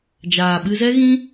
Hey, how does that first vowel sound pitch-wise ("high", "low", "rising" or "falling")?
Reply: low